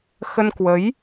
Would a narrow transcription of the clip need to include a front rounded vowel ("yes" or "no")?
no